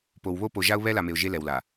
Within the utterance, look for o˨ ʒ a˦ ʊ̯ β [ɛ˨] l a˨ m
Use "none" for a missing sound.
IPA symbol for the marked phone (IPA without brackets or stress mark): ɛ˦